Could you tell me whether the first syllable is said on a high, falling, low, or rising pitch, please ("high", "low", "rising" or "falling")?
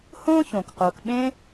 high